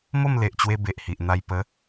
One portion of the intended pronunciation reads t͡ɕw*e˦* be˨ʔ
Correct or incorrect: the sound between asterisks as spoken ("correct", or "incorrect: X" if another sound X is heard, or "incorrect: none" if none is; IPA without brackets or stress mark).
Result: incorrect: e˧